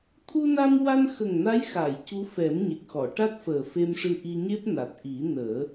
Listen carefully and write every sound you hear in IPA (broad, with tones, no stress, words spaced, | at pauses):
t̪ʰu˧na˧mwa˧nxə˨˩ŋ na˧˥j xa˨˩˨j cu˧˥fɛ˨˩˦mɲe˨˩k̚xɔ˨˩˨ ʈa˦˥t̚fəː˨˩fe˧mʂɨ˧ ʔi˧ɲe˦˥p̚ na˨˩t̚ ʔi˨˩˦nəː˨˩˦